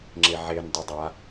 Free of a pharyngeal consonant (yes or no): no